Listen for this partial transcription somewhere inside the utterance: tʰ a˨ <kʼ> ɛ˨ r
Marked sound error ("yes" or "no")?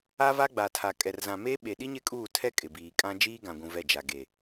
no